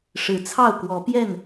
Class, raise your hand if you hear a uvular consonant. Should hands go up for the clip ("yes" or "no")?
no